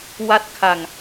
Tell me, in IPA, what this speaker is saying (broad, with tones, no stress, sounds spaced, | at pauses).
w a˥˩ t̚ kʰ a˧ ŋ